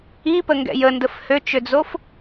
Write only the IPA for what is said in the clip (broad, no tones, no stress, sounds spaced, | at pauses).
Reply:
i p ə ŋ ɡ ɛ̰ j ə n d ə f h ø t͡ʃ ø d͡z o f